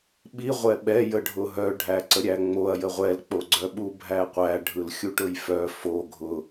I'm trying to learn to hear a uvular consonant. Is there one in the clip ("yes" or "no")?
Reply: yes